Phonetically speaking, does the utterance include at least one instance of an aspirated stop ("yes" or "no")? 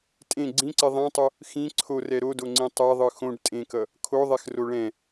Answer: yes